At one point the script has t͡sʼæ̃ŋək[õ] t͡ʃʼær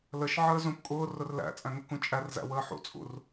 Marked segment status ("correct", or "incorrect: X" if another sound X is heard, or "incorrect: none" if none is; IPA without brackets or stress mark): incorrect: ũ